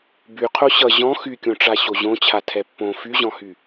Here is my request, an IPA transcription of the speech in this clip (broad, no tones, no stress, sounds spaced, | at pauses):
b y qʰ o ɕ ʌ ʑ ɔ̃ x y kʲ õ ʈ͡ʂ a ɕ o ʑ õ t͡ɕʰ a tʰ ɛ pː õ f y ʑ ɔ̃ h y